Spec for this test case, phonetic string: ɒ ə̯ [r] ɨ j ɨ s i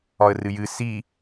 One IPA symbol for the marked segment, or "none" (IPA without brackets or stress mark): r